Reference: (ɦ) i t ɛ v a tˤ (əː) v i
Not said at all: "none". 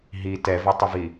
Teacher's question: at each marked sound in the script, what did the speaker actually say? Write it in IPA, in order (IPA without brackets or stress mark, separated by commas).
ɦ, ə